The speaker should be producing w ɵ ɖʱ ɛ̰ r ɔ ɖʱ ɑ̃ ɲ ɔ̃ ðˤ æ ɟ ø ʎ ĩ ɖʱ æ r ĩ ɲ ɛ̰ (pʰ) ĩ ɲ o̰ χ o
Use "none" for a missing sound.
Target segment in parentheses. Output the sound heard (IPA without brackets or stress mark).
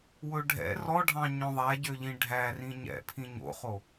pʰ